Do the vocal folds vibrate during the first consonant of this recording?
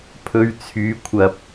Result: no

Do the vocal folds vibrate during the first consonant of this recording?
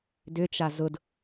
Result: yes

